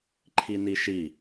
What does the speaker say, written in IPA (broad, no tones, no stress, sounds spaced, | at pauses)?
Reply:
ǃʰ i n i ʃ i